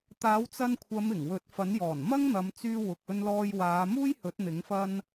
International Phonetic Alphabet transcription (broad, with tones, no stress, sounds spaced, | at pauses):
t̪ aː˨˥ w t͡s ɐ˧ n kʷʰ ɐ˨˧ m ɪ˨˩ ŋ w ɵ˨˥ t̚ f ɐ˨˥ n j ɔː˨˩ n m ɐ˥ ŋ n̪ ɐ˨˧ m t͡s yː˧ w ʊ˨ k̚ ɵ˧ n l ɔː˧ j w aː˨˧ m uː˥ j h ɵ˨˥ t̚ n̪ ɪ˨˥ ŋ f ɐ˥ n